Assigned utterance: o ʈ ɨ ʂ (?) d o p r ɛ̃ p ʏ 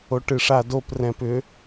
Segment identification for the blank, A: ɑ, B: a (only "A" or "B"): B